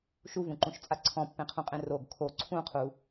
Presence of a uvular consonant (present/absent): present